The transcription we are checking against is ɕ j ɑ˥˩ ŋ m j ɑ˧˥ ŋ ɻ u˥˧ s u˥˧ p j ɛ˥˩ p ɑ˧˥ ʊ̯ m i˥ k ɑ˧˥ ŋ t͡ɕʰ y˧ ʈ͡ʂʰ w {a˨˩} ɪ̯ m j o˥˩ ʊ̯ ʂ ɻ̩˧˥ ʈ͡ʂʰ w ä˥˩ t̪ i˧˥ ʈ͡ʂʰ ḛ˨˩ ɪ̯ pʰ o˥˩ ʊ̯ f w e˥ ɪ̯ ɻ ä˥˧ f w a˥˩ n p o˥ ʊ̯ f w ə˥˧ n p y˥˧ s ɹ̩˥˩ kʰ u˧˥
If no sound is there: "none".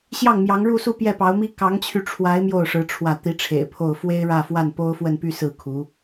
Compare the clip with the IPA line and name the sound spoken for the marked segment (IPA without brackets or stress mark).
a˧˥